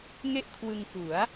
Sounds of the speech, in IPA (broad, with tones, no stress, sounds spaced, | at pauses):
ŋ e˥˩ ʔ kʰ w ɯ˧ ŋ k u˩˦ a̯